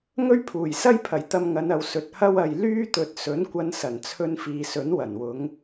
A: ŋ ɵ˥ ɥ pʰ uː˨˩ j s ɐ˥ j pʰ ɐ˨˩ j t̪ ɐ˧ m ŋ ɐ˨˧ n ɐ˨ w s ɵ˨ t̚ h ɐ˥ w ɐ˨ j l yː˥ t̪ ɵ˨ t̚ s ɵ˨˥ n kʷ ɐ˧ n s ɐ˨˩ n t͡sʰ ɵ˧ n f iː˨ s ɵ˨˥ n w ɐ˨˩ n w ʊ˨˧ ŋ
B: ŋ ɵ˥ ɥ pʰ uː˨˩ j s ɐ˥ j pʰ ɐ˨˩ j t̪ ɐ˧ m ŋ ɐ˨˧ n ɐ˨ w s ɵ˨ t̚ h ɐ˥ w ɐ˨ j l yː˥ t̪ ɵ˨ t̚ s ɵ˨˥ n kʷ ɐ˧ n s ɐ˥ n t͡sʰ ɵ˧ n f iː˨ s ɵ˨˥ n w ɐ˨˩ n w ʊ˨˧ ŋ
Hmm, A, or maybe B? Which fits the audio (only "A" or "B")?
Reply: A